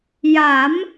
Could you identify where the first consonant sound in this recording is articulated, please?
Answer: palatal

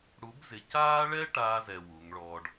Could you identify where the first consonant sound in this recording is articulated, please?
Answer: retroflex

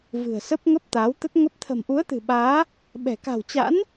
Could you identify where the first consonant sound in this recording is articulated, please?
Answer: labial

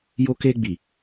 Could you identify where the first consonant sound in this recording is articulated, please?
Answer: palatal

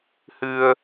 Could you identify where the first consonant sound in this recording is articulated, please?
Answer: glottal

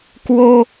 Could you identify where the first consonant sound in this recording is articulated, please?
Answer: velar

